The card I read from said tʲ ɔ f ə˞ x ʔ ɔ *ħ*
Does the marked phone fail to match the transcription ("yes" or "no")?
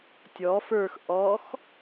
yes